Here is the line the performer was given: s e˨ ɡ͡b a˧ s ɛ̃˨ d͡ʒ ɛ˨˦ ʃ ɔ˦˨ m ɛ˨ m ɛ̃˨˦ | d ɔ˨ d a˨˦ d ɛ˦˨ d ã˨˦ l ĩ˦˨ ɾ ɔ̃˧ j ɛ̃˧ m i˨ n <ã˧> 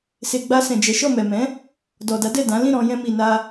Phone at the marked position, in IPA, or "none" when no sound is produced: a˧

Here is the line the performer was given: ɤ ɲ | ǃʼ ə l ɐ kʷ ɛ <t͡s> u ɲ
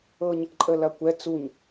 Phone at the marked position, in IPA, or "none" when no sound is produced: t͡s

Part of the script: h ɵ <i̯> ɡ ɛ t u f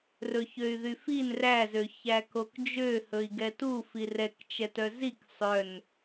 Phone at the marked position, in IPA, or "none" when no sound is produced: i̯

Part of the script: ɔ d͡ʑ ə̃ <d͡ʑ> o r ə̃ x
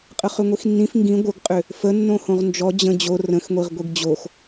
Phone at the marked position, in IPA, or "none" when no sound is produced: d͡ʑ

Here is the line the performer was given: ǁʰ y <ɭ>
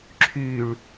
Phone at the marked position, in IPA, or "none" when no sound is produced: ɭ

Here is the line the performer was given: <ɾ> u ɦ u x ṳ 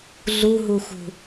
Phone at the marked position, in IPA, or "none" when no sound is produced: ɮ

